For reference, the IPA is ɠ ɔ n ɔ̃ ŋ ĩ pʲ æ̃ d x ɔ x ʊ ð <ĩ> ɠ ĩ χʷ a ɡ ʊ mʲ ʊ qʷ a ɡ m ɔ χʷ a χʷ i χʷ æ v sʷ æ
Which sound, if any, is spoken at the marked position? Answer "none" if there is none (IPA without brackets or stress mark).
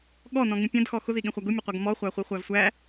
i